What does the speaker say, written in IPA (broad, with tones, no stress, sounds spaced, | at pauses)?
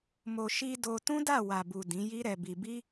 m o˨ ʃ i˧ d o˧ t ũ˦ d a˦˨ w a˨ b u˨ d ĩ˨˦ j i˦ ɾ ɛ˧ b i˧ b i˦